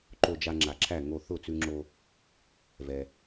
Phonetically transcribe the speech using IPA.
ǃ o˧ d͡ʒ a˧ ŋ͡ǁ a˩ ǁʰ æ˥˩ ŋ o˥˩ θ ʊ˥˩ t͡s ʉ˧ ŋ͡ǁ o˧ | v ɛ˩

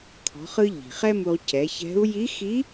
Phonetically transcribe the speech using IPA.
t̪ʰ ɔ̤˩˧ χ ɯ˧ ʎ i̤˩ χ ɛ˥ m u˧ ʁ c ɛ˩˧ ç ɛ̤˧˥ u̯ j i˧˥ x i˧˥

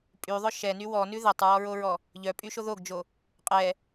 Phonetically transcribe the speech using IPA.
pʼ y ðˤ œ ʃ ɛ n y w ɔ n ʉ ð ɛ tˤ ɹ ɔ ɹ o ɹ ɔ | ʎ œ pʼ y ʃ o ð o ɡ d͡ʒ o | qʼ ɛ

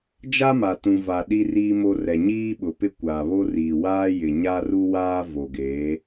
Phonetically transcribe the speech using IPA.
d͡ʒ a˦ m a˨ t ũ˨ v a˨ ɗ i˦ r iː˦ m o˦ r ɛ˨ ɲ iː˦ ɓ ʊ˨ p ɪ˦ kʷ aː˨ β o˦ r iː˨ w aː˦ j ɪ˨ ɲ a˦ r u˦ w aː˦ v o˨ ɡ eː˨˦

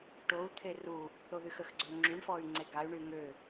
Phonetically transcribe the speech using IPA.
ʈ o u̯ t̪ʰ e r u | θ o ð y x ə x ɡ͡ǀ ø ŋ͡ǁ y ɳ f ɔ y̯ ŋ͡ǀ e ɡ a y̯ ɳ y ŋ ø

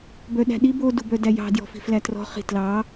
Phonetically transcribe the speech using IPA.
b œ ɗ æ̤ ɗ i b o d u b œ d æ j ɑ̤ d j ɔ̤ f i̤ f l æ t r ɔ̤ χ i̤ t l ɑ

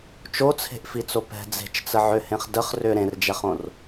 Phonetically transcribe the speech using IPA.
t͡ʃ o t͡sʰ e̤ ʔ f i t͡s o p ɛ̤ d͡z e̤ t͡ʃ t͡s ə ʕ ʏ h ẽ χ d ə χ r ʏ ɾ ẽ r d͡ʒ ɛ χ õ r

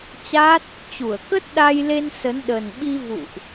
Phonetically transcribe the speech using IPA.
t͡ɕ a˦˥ t̚ | t͡ɕ u˧˩ ə̯ k ə˦˥ t̚ ɗ a˧ j l e˧ n s ə˨˦ n ɗ ə˨˩ n ɓ i˧ v ṵ˧˨ ʔ

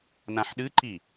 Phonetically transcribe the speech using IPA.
n ã ħ ɗ ɨ ǃ i

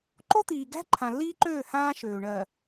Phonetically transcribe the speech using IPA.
ǃ o˦ t̪ iː˨ ɡ æ̤˦ ǃʰ ã˨ lː iː˦ ǃ øː˦˨ h ãː˦ ʃ øː˨ ɳ ɜ˨

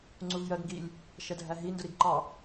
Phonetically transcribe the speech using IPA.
ŋ͡ǀ u v j ɜ ɡ ŋ ɡ i lʲ | ʃ ɛ dʱ æ ɦ i n d ʊ ɾ i ɡ ǃ ɑ

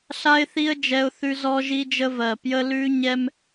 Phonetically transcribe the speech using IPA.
ɬ a˦ ɪ̯ θ i˦ ə̯ d͡ʒ ɛ˦ ʊ̯ θ ʉ˦ z ɔ˦ ʒ i˦ d͡ʒ ə˦ v ɜ˨˩ p j ə˦ l ʉ˦ ɲ ɛ˦ m

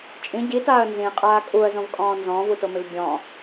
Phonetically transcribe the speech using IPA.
t͡ʃʼ ĩ ɟ i t aː ə̯ n z ĩ qʼ aː kʼ u ə̯ z õ v kʼ ɔ̃ː n z ɔ̃ː v u t o m ɪ v bʲ ɔ̃

